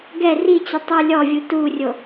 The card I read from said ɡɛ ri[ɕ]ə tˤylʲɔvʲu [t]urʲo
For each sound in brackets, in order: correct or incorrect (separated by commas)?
incorrect, correct